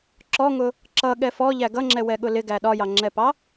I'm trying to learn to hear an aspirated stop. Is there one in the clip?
no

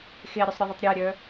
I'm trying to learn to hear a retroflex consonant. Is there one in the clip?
no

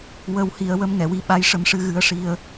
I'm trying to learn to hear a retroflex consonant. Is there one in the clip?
yes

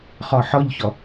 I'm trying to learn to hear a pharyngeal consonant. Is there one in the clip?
yes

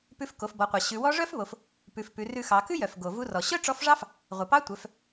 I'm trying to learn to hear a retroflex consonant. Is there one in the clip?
yes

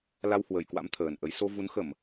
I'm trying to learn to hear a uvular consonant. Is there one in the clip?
no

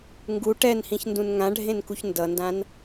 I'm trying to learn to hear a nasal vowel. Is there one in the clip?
yes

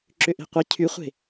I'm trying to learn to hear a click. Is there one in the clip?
yes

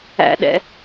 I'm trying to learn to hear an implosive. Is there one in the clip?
yes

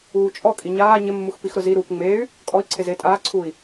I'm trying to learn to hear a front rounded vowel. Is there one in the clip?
yes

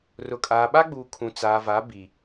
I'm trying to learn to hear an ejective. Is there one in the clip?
yes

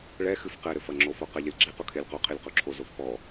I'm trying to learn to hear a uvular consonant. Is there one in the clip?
yes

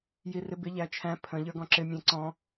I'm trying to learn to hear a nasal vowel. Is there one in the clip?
yes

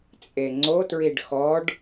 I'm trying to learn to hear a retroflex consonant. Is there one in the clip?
yes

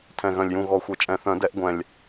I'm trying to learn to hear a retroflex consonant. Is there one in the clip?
no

